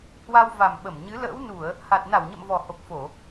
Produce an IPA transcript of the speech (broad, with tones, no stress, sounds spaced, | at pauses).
h w a˧ w v a˨˩ m ɓ ə˧˩ m ɲ ɨ˨˦ l ə̰ː˧˥ w n u˧˩˨ ə̯ | h a˨˩ t̚ n a˧˩ w ɲ ə̰˧˨ m v ɔ˨˩ h o˨˩ k̚ f o˧˩˨